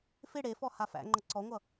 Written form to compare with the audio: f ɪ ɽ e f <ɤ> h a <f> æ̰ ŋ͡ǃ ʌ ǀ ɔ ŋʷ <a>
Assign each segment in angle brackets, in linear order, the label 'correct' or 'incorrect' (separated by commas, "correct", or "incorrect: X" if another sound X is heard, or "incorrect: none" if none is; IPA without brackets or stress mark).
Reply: incorrect: ɔ, correct, incorrect: ʌ